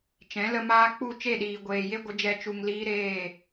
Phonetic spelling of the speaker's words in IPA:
t͡ʃ ɛ̃˨˦ l ə˧ m aː˦ k͡p u˦˨ t͡ʃ e˦˨ ɗ iː˨ ɡʷ eː˨ j e˦ ɡʷ ə˨˦ d͡ʒ ɛ˧ t͡ʃ u˨ ŋ l iː˧ ɾ eː˦˨

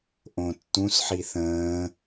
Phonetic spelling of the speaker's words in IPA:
ʔ õ tː ũ s ħ i θ ə̃ː

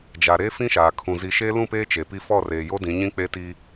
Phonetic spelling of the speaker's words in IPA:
d͡ʒ a˨ ɾ e˦ f ĩ˦ ʃ aː˨ kʰ ũ˨ z i˨ ʃ e˦ l ũ˦˨ p eː˦ t͡ʃ e˨ p i˦ f ɔ˦˨ r eː˨ j o˦ d ĩ˨˦ ɲ ĩ˦ k͡p e˦ t iː˦

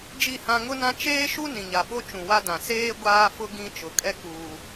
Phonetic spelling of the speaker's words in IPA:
d͡ʒ i˦˨ h ã˦ ŋ ʊ˦ n ã˦ t͡ʃ eː˦ ʃ u˦ n ĩ˨ ɲ a˨ ɓ o˦ t͡ʃ ũ˨ w a˦ d ã˨ s eː˦ ɡʷ aː˦ f ʊ˦ ɡ ĩ˦ t͡ʃ ʊ˨ kʼ ɛ˦ k uː˦

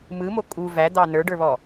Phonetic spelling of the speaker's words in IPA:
m ɯ m o kʼ u v æ d̪ ɑ n ə˞ ɖ ə˞ β ɔ

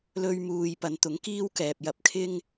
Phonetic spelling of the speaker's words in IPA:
l ɵ˧ ɥ m uː˨ j p ɐ˨˧ n t̪ ʊ˨˥ ŋ k iː˥ w k ɛː˨ p̚ j ɐ˧ p̚ kʰ ɪ˥ ŋ

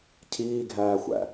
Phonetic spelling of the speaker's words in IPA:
cʰ iː ɡʱ æː xʷ æ̰

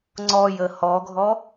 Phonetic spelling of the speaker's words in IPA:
ŋ͡ǀ ɔ j ə h ɔ ɡʱ ɔ

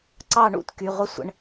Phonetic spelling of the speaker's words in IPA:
ǀ ɑ˥˧ ɳ ṵ˨˥ t k y˩˧˩ ʁʷ ə˥˧ sʷ ə̰˩˧˩ ɳ

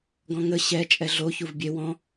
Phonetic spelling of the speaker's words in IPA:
ɡ ɔ̃ ŋ ə ɕ ɛ t͡ʃʼ ɛ ɮ o ç u v bʲ e w ɔ̃

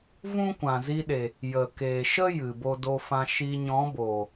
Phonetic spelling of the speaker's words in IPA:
v ũ˦ kʷ ã˨ z i˧ ɗ e˨ | j ə˨ k eː˨ ʃ ə˦ j ɨ˨ b o˧ d o˧ f ã˧ ʃ i˧ ɲ ɔ̃˨˦ b oː˨

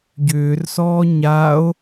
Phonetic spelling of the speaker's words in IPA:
ɟ ʏː r s ɔː ɲ a o̯

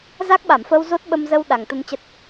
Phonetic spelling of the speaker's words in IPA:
z a˦˥ k̚ ɓ a˧˩ m f ə˧ w z o˦˥ t̚ ɓ ə˧ m z ə˧ w ɗ a˨˩ ŋ t̪ ə˧ n t͡ɕ ə˦˥ t̚

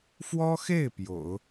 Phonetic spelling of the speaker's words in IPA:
f w ɔ˥ x e˥˩ ɪ̯ p j o̰˨˩˦ ʊ̯

